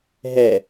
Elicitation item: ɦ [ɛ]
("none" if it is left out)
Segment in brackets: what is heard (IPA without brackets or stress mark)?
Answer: ɛ